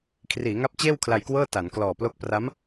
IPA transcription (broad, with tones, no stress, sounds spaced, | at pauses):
kʰ r iː˩˦ ŋ a˦˥ p̚ t͡ɕ eː˥˩ w kʰ l a˧ j k w ɤː˥˩ t a˩˦ n k l ɔː˨˩ p l o˦˥ k̚ p r a˦˥ m